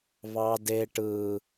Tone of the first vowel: high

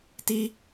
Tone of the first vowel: high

